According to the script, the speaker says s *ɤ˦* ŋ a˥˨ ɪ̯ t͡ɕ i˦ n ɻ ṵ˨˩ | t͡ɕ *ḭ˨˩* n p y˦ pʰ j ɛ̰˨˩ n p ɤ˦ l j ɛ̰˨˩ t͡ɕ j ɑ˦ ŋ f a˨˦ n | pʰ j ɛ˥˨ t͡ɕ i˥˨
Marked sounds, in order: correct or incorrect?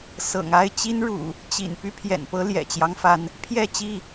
incorrect, correct

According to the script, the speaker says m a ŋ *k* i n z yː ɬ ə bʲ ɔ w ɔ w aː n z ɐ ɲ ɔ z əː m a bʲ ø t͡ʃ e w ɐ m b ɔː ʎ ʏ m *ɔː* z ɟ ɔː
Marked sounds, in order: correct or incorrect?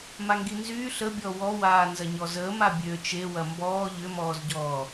incorrect, correct

